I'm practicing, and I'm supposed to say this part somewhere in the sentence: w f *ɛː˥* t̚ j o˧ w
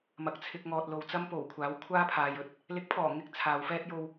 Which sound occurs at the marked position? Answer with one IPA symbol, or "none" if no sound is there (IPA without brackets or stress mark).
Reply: ɛː˥